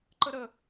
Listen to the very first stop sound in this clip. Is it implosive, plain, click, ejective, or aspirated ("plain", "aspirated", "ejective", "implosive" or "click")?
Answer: click